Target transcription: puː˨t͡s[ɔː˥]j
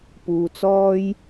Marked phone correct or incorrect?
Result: correct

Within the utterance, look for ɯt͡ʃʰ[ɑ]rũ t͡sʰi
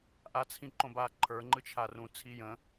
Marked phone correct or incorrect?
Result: incorrect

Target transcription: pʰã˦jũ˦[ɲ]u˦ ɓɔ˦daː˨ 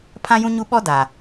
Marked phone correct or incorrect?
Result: correct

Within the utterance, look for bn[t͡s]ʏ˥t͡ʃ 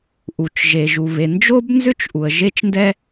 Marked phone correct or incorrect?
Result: incorrect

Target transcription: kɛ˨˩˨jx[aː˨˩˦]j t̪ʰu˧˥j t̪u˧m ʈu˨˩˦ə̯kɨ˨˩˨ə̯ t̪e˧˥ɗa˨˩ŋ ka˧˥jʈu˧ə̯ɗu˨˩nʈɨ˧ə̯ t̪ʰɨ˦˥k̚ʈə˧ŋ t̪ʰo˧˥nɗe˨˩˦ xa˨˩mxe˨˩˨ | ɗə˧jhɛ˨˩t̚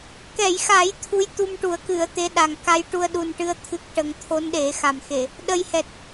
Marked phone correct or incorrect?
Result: correct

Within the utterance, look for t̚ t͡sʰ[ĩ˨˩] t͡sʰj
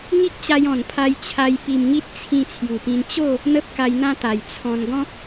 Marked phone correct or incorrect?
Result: incorrect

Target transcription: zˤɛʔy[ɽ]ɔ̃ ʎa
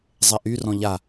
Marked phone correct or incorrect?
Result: incorrect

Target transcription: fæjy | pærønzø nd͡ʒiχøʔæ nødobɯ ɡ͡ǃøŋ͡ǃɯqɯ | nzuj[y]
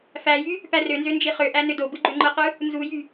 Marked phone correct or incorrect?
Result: correct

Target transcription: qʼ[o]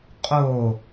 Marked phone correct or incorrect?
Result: correct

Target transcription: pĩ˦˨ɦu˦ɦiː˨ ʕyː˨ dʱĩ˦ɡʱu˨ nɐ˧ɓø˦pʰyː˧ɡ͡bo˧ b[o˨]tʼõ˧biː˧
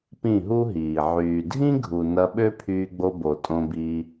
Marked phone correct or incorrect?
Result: correct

